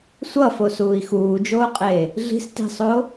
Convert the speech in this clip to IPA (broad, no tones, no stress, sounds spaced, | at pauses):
sʷ ʌ f o s uː i̯ x uː d͡ʒ oː qʼ eː | ɮ i̤ s t i̤ sˤ oː